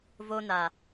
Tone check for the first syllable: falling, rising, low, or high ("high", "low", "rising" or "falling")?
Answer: high